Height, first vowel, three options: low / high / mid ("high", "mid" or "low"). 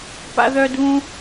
low